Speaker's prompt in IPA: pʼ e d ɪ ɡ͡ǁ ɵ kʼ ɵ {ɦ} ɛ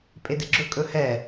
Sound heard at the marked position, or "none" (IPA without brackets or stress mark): h